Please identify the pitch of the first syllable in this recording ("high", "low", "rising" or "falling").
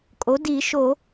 rising